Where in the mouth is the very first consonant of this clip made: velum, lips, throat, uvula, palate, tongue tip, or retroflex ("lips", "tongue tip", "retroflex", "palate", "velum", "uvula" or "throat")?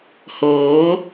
throat